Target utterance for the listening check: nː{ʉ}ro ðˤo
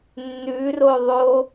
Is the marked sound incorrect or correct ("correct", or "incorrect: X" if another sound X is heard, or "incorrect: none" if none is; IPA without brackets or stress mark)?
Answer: correct